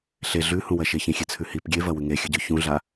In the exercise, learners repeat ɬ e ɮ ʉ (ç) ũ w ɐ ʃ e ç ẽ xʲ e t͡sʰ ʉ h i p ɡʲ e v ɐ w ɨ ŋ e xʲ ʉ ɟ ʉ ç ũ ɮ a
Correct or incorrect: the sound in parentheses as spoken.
incorrect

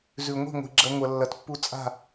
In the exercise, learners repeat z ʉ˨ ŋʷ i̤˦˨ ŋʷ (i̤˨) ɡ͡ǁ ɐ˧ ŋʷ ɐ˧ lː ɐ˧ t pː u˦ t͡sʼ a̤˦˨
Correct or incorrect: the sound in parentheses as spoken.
correct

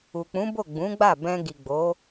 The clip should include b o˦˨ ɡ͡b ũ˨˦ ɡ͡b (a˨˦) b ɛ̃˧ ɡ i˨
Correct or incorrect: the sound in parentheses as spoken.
incorrect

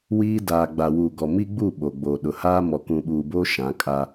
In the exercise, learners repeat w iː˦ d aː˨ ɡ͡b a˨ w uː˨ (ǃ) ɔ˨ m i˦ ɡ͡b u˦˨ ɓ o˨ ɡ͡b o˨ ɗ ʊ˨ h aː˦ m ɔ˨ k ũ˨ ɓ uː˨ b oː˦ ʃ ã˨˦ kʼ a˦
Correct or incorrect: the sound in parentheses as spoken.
incorrect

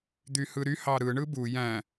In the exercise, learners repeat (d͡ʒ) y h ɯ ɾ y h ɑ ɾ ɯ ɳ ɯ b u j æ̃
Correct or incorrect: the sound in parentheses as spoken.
incorrect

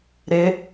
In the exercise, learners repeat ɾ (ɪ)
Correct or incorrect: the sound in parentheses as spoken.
correct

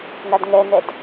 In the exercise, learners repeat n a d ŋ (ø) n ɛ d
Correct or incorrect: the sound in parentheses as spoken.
incorrect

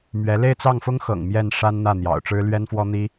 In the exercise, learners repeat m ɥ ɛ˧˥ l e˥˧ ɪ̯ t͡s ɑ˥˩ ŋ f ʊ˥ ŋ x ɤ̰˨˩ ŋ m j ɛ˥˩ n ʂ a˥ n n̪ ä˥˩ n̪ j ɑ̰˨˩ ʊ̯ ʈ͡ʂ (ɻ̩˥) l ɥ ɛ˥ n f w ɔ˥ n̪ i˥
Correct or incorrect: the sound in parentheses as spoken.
correct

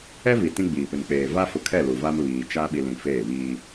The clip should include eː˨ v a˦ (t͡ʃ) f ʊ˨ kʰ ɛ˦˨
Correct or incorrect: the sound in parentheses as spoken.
incorrect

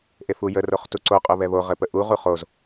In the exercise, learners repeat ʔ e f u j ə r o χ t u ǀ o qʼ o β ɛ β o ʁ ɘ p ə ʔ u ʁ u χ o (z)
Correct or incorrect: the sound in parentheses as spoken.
correct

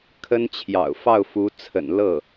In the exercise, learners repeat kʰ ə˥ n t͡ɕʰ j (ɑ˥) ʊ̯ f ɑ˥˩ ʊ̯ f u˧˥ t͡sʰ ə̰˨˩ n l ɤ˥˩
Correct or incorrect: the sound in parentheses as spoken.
incorrect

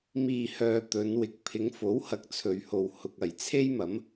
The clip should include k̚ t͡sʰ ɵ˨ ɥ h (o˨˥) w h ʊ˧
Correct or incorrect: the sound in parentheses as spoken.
incorrect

